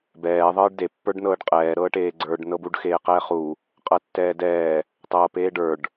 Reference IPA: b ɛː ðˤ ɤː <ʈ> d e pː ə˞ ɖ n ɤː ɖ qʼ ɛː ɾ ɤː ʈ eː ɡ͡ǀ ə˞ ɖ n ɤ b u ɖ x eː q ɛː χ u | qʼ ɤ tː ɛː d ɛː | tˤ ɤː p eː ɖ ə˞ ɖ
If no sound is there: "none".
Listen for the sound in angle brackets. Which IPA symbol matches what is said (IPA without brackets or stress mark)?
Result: ɖ